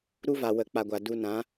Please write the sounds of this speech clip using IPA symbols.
ɾ u˦ v a˨ w ə˨ k͡p a˨ ɡʷ a˨ d u˧ n ã˨˦

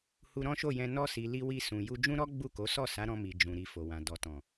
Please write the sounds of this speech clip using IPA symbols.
h u˧ ɾ ɔ̃˦ ʃ o˦˨ j ɛ̃˧ n ɔ˧ s i˨ l i˧ w i˧ s ũ˨ j u˧ d͡ʒ ũ˦ ɾ ɔ˦ ɡ͡b u˦˨ k o˨˦ s ɔ˦˨ s a˨˦ ɾ ɔ̃˧ m i˨ d͡ʒ ũ˨ ɾ i˨ f o˨ w ã˨ d ɔ˨ t ɔ̃˨

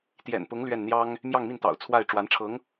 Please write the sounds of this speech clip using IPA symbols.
t̪ j ɛ̰˨˩ n p ʊ˧˥ ŋ l ɥ ɛ˥˩ n n̪ j ɑ˥ ŋ | m j ɑ˥˧ ŋ m i˥˩ n t̪ ɑ̰˨˩ ʊ̯ t͡sʰ w a˥˩ ɪ̯ ʈ͡ʂ w a˧˥ n ʈ͡ʂʰ ɤ˧˥ ŋ

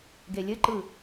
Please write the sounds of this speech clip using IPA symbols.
ɡ e lʲ ɘ ǃ ɯ

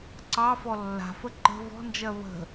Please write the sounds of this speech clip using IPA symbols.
ǀ ɑ f ɔ lː a̤ f ə ǃ ə̤ v ɔ̤ n d͡ʒ ɜ β ə̤

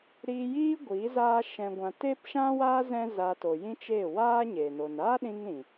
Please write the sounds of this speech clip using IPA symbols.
ɾ iː˧ j iː˦ ɡʷ iː˨˦ z aː˦ ʃ ɛ̃˨ ɡʷ ã˨ t eː˦ p ʃ ã˦ w aː˦ z ɛ̃˦ z a˧ t o˨ j ĩ˦ t͡ʃ eː˦˨ w aː˦ ɲ eː˨ n o˨ n aː˦ ɗ ĩ˧ ŋ ɾ ĩ˨

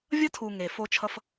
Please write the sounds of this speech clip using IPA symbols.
vʲ ʌ˦ tʰ u˨ ŋ e˨ f o˦ t͡ʃʰ ʌ˦ f

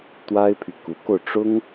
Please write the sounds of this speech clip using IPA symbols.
t̪ w a˥ ɪ̯ pʰ y˨ k u˧˥ k o˧ ʊ̯ ʈ͡ʂ ʊ˥ ŋ

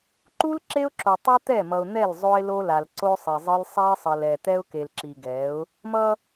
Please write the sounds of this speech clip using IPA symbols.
ǃ u˦ l ǁ e˦ ʊ̯ ǁ o˨ tˤ u˦ t̪ ɛ˦˨ m ʌ˨ ʊ̯ n̪ ɛ˦˨ l zˤ o˦ ɪ̯ l o˦ l a˨ l ǀ o˦ sˤ i˨ zˤ ɯ˦ l sˤ ɛ˦ ɪ̯ sˤ ʌ˨ l ɛ˨ t̪ ɛ˦ ʊ̯ k e˨ l ǁ i˨ ɡ ɛ˨˦ ʊ̯ | m ʌ˦

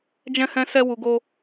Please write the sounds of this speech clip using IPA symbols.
d͡ʒ ɛ̃˦ h ɛ̃˦ s ɛ˦ w u˧ ɡ o˦

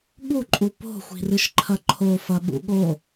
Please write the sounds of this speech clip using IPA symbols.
ɠ u ǃʼ u p o̤ xʷ i̤ r ɨ ʃ ǃʰ ɐ ǃʰ o f ɐ ɓ ṵ ɠ o

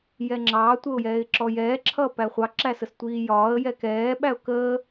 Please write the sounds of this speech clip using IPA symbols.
j ɛ ŋ͡ǁ ɑ tʷ ə ʊ̯ j ɛː ɪ̯ ǁ ɔ j ɛː ǁʰ ʌː p æ χʷ ɑ ǁ æ s ə s tʷ iː j ɒː ə̯ j ɛ k ɛː ɓ æ ʊ̯ k əː

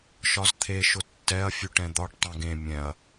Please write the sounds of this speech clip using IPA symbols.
ʃ ɒ z t̪ʰ e ʃ ʊ tː ɛ ɐ̯ fʲ ʉ ʈ ɛ̃ d̪ ɒ ʈ tˤ ɛ̃ ɡ ẽ mʲ ɛ̃ ɐ̯

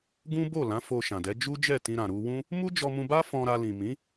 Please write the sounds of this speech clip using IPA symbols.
ɡ ũ˦ b o˦˨ l ã˨˦ f o˧ ʃ ã˨ d ɛ˨˦ d͡ʒ u˦ d͡ʒ ɛ˦˨ t ĩ˧ ɾ ã˨ ɾ u˧ w ũ˦ | m u˦ d͡ʒ ɔ˧ m ũ˧ b a˦ f ɔ̃˧ ɾ a˧ l ĩ˨ m ĩ˨˦

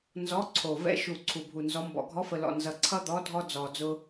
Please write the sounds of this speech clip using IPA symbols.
n z ɔ˨˥ ǀʰ o˨˩ v ɛ̰˨˥ ʃ u˨˩ ǀʰ u˨˩ bʱ u˨˩ n z ɔ˨˥ m b ɔ̰˨˩ ɡʱ ɔ˨˥ f ə˨˩ l ɔ̰˨˩ n z ʌ˨˩ ǀʰ ʌ˦ d̪ ɔ˨˥ dʱ ɔ˦ d͡z ɔ˨˩ d͡z ʊ˦

